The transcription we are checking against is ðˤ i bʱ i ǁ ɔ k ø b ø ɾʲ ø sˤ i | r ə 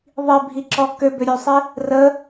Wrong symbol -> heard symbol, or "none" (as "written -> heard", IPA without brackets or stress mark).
none